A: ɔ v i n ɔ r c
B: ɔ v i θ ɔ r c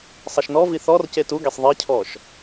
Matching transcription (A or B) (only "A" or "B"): B